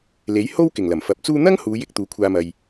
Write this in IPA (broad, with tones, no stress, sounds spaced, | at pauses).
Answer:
l e˨˥ j h o˥ w k ɪ˨˩ ŋ l ɐ˨˩ m f ɐ˨˥ p̚ t͡s uː˥ n̪ ɐ˥ ŋ h uː˨˧ j ɪ˧ k̚ t̪ uː˨˥ kʷʰ aː˧ m ɐ˨ j